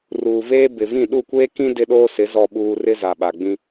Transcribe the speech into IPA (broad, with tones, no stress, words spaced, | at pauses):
ruː˨veː˦ bɪ˨vĩ˦˨ ɗu˦˨kʷeː˦kĩ˦ dɪ˦ɗoː˦sɪ˨˦ zɔ˨ɓuː˨ rɪ˦za˨ɓa˨ɡ͡bĩ˦